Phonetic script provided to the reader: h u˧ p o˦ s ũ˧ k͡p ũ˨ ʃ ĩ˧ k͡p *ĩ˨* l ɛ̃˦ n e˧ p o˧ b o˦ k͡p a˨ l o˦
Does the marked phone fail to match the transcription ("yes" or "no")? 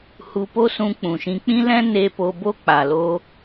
yes